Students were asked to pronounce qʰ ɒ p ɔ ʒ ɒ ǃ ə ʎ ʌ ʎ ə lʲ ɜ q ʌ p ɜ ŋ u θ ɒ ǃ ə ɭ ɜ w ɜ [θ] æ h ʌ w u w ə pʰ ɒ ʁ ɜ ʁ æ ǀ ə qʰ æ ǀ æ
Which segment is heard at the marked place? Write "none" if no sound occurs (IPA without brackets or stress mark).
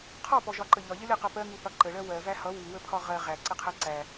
v